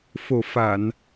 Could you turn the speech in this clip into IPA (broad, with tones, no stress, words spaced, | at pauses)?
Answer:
fo˨˩fa˨˩˨n